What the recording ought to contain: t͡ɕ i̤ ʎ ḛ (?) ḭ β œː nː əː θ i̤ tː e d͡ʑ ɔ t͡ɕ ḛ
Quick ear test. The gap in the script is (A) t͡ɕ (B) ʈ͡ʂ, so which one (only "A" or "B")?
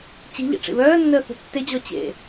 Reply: B